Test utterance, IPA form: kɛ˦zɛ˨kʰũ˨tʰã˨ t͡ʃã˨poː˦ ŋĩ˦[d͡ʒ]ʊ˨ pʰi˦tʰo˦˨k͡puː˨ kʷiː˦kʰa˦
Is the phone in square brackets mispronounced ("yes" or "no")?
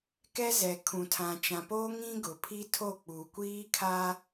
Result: yes